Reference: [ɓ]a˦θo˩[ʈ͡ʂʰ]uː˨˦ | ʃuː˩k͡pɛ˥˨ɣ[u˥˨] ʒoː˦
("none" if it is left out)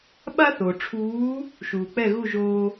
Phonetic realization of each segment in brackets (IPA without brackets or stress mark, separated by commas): ɓ, ʈ͡ʂʰ, u˥˨